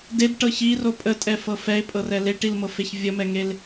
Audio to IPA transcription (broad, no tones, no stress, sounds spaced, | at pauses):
d e d ʈ ɤ ç i r o pʼ ə tʼ ɛ f ɤ f ɛ ɪ̯ pʼ ɤ r ɛ l e ʈ i l m ɤ f e ç vʲ ə m ɛ ŋ e l